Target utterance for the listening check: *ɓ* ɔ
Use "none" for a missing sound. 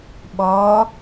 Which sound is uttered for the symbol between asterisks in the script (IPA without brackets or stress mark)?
ɓ